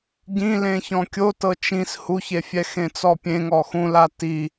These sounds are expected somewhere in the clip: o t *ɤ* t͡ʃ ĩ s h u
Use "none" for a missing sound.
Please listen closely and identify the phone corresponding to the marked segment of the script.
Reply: ɤ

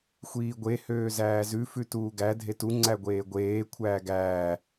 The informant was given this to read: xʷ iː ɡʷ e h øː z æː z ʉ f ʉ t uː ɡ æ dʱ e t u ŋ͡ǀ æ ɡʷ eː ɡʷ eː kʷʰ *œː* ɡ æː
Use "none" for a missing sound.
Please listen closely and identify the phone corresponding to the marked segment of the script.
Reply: æː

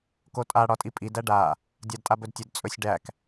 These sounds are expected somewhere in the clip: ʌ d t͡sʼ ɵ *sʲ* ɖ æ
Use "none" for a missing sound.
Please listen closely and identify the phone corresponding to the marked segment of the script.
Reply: sʲ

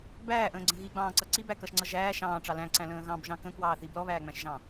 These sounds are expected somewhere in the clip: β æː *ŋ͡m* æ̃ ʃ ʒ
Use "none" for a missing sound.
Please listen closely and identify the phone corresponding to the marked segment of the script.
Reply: ŋ͡m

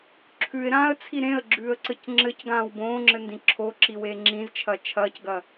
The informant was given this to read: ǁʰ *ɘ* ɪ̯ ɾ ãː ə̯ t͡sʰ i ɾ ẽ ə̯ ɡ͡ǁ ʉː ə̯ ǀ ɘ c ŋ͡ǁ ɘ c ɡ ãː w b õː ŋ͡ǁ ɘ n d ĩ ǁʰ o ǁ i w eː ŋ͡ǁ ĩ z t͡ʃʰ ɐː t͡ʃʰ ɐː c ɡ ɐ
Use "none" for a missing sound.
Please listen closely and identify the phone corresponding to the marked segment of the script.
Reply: ʉ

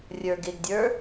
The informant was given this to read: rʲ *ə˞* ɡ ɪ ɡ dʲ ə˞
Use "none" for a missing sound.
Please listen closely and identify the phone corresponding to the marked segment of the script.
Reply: ə˞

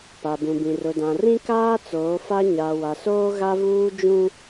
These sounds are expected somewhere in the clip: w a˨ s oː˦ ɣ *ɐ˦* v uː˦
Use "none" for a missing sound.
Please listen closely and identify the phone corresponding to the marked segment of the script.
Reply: a˦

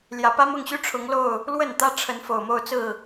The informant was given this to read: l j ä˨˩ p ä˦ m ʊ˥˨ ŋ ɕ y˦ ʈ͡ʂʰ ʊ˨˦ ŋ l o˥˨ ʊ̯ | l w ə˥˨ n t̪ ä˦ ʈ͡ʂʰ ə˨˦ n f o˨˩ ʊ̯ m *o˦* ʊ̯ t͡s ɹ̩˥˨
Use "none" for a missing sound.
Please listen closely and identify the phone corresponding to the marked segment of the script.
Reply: o˥˨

